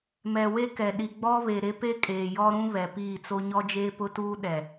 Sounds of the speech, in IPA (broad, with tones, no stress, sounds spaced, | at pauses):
m ɛ˨ w e˦ k ɛ˨ ɗ i˨ ɡ͡b ɔ˦ β e˨ ɾ e˦ p e˦ kʼ eː˨ j ɔ˦ ɾ ũ˦ β ɛ˨ p iː˦˨ t͡s o˦ ɲ ɔ˦ d͡ʒ eː˦ p ʊ˦ t uː˦ ɗ ɛ˨